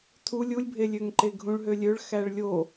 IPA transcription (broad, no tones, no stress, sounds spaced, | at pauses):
tʰ u lʲ u lʲ bʱ e lʲ ø ŋ ǃ e ɡʱ ũ ɭ ɦ ø lʲ ø ɭ x æ ɭ lʲ o